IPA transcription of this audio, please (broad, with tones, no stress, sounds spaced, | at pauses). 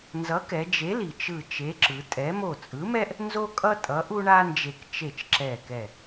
n z ʌ˨˥ k ɛ˩˧ d͡ʒ e˨˥ l i˩ t͡ʃ ɯ˧˩ t͡ʃ e˨˥ ǁ ɯ˩˧ tʼ ɛ˨˥ m o˧˩ t͡sʼ ɯ˨˥ m ɛ˥ ʔ | n z o˥ kʼ ʌ˥ tʼ ʌ˨˥ ʔ u˥ ɳ a˥ n d͡ʒ e˧˩ k t͡ʃ e˧˩ t͡ʃ ǁ ɛ˧˩ k ɛ˧˩